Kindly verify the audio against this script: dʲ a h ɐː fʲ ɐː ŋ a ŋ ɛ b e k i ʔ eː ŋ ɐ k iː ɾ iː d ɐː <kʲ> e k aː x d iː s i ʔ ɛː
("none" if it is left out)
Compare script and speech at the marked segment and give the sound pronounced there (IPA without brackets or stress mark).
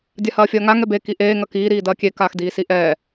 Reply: kʲ